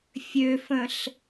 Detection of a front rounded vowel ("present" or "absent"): present